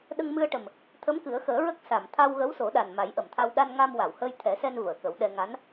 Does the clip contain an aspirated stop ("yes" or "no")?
yes